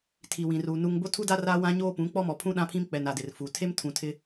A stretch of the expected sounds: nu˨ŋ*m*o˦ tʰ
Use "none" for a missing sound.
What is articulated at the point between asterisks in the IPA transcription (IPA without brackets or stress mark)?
b